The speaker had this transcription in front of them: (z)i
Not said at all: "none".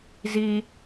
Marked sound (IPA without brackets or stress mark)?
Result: z